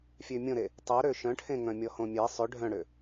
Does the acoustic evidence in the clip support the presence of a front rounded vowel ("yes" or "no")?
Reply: yes